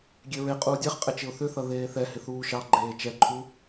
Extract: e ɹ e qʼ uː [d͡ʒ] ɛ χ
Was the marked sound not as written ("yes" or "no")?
yes